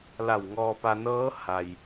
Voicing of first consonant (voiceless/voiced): voiced